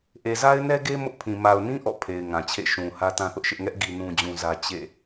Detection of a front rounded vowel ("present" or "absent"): absent